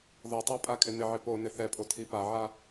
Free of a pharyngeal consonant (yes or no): no